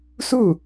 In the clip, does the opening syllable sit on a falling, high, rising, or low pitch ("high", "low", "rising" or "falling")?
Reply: falling